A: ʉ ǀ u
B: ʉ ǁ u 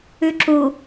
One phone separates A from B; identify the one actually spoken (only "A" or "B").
B